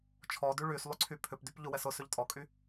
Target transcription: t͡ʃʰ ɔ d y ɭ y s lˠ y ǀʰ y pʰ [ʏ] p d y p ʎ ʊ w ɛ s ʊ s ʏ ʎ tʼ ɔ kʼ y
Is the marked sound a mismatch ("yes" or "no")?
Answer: no